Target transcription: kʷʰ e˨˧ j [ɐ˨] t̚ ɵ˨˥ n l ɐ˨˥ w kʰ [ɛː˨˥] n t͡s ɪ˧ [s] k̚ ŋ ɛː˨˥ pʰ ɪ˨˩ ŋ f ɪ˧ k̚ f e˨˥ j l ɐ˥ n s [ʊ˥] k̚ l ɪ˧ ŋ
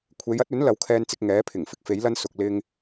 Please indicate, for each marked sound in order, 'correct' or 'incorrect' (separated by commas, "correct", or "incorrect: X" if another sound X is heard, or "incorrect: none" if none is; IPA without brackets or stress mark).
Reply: incorrect: ɐ˥, incorrect: ɛː˧, incorrect: none, incorrect: ʊ˨